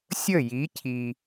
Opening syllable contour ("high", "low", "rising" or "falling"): falling